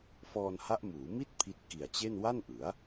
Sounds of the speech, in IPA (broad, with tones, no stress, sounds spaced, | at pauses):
f ɔː˧ n h a˦˥ ʔ m uː˩˦ m i˥˩ t̚ pʰ i˦˥ t̚ k i˨˩ a̯ t͡ɕ e˥˩ n w a˥˩ n ʔ ɯ˩˦ a̯